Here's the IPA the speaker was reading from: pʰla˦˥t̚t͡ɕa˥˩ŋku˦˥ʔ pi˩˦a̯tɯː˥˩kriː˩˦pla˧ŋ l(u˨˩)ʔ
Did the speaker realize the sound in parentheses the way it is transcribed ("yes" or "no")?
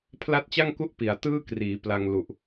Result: yes